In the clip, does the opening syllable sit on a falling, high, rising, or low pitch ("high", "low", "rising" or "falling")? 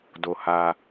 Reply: low